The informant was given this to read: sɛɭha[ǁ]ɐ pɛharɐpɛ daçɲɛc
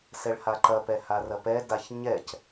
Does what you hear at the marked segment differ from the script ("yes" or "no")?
yes